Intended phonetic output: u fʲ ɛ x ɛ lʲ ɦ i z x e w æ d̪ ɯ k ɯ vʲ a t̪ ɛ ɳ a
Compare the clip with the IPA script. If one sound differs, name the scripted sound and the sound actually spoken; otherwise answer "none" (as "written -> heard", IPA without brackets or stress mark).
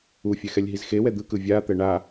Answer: æ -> ɛ